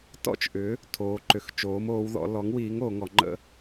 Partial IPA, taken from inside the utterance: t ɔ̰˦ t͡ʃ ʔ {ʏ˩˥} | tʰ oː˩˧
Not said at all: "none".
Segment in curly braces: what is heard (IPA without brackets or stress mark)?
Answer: ʏ˩˥